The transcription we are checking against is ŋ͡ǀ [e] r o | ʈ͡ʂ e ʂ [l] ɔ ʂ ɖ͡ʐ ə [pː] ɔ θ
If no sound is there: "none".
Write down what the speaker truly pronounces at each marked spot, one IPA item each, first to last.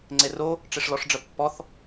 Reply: e, l, pː

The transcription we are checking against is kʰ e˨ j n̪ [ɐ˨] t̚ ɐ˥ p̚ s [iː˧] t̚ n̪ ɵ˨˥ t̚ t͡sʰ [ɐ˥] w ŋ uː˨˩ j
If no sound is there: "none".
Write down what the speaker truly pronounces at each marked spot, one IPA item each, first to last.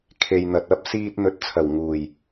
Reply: ɐ˨, iː˧, ɐ˨˩

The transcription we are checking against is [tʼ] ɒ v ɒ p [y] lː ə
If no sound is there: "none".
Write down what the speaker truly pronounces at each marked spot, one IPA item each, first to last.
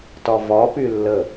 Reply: t, y

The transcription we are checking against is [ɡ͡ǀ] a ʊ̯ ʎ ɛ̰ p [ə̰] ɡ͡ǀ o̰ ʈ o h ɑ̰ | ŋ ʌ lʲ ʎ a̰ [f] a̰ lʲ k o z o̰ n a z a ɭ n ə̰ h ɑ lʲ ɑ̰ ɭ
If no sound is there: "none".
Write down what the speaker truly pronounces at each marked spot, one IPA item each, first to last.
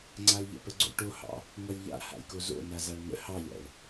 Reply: ŋ͡ǀ, ə, h

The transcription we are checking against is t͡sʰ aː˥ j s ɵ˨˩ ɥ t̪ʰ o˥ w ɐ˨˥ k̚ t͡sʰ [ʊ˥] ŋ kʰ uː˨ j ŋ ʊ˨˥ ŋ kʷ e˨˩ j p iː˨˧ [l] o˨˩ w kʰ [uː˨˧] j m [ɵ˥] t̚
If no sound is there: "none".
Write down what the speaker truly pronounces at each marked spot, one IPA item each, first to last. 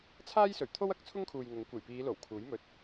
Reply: ʊ˥, l, uː˨˥, ɵ˧

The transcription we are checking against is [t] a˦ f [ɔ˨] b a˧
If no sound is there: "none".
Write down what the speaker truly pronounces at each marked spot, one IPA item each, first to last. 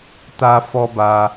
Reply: t, ɔ˦

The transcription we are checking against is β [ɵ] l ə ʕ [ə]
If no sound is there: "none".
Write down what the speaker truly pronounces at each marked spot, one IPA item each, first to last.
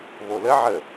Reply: o, ə

